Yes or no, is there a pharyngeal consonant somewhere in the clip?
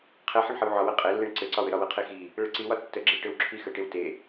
yes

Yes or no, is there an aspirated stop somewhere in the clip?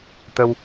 no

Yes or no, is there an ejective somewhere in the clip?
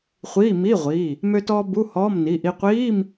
no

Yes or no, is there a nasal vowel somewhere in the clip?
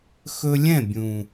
yes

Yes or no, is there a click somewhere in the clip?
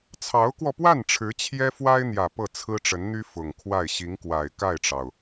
no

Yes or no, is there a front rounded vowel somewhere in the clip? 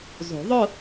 no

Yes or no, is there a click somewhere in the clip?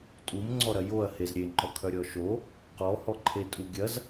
yes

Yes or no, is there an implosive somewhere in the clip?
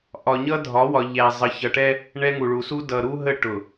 no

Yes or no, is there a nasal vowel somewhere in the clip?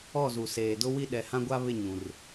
yes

